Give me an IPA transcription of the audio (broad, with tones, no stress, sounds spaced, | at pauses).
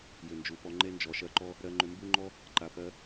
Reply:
j ʏ˨ n d͡ʒ u˨ p ɔ˧ ŋ͡ǃ e˦ n d͡ʒ ɔ˨ ʃ ɜ˦ ǃ ɔ˦ | ɾ ɜ˧ ŋ͡ǃ ʏ˧ m b u˦ ŋ͡ǃ ɔ˦ | ǃ a˨ p ɜ˧